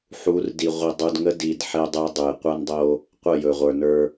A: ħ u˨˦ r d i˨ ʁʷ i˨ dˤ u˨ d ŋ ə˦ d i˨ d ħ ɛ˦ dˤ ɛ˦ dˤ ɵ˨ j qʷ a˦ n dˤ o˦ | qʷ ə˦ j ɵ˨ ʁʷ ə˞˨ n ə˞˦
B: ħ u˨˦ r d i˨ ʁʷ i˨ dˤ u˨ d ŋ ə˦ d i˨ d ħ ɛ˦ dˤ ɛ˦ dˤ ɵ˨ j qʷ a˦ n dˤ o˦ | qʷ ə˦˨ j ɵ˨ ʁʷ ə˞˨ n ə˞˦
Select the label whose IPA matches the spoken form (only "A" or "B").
B